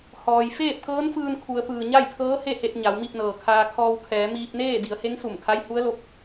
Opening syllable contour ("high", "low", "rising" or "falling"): low